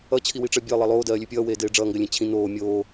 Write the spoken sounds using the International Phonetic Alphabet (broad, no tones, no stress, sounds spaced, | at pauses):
ʌ t͡ɕʰ i w i ʈ͡ʂ ɜ bʲ ɜ lˠ ʌ lˠ oː d ɜː lʲ ʉ pʲ ʌː w eː d eː ɖ͡ʐ ʌː ŋ ɡ ɜ lʲ ẽ t͡ɕʰ ĩ n oː mʲ oː